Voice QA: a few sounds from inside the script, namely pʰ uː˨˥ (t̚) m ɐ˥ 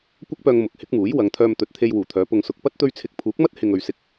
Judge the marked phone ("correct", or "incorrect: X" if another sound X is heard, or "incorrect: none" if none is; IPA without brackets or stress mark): incorrect: k̚